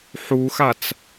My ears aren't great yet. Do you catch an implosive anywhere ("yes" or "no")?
no